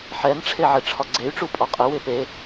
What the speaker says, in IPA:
ħ ɛ n ʈ͡ʂʰ e ʕ e ʈ͡ʂʰ ɒ ɡ͡ǀ e y̯ ʈ͡ʂ u pʼ ɒ qʼ ɪ w ɪ p e

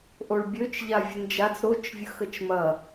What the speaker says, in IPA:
ʔ o ɭ bʲ ø t͡ʃ ʎ a vʲ ʊ n d͡ʒ a t͡s ɾ o t͡ʃ vʲ ə x ə t͡ʃ m ɐ

